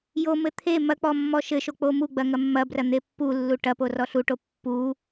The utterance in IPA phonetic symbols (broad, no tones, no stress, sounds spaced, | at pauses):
j o m ɘ t̪ʰ e m ɐ k͡p ɔ mː ɔ ʃ ɘ ʃ o k͡p o m u ɡ͡b ɐ ŋ ɐ mː ɐ b r ɐ n̪ e pː u lː u ʈ ɐ p o r ɔ ɬ u ʈ o pː u